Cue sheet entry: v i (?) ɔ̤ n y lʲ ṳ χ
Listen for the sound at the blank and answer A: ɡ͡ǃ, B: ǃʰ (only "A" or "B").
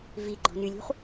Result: A